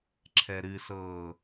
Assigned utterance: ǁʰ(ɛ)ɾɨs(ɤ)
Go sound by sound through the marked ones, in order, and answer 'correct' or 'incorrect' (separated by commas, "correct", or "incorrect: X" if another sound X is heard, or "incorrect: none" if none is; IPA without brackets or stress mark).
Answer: correct, incorrect: ɤː